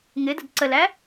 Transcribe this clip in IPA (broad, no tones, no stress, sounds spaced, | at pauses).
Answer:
ŋ ɪ d ə̤ d ǀ ə l æ